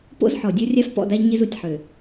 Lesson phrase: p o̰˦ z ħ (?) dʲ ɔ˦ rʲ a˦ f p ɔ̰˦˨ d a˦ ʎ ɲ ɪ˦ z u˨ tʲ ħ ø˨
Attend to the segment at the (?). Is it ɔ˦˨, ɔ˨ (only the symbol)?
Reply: ɔ˨